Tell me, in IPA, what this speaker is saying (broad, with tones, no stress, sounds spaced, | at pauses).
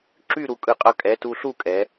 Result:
ǁ y˥˨ ɾ u˧˩ kʼ ɯ˧˩ qʼ ʌ˧ kʼ ɛ˩˧˩ t u˧ ɬ u˥˨ kʼ ɛ˩˧